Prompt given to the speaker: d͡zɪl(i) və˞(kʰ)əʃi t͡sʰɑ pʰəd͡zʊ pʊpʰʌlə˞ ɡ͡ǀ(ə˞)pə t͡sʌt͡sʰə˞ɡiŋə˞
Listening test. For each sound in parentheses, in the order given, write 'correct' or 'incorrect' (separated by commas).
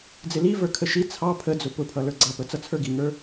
correct, correct, incorrect